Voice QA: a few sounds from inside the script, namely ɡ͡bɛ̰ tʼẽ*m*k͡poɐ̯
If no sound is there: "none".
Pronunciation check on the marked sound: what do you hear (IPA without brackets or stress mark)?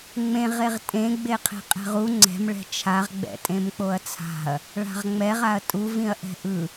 m